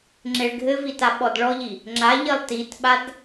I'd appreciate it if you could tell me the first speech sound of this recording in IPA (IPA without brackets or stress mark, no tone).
ŋ͡ǁ